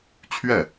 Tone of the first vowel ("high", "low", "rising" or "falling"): falling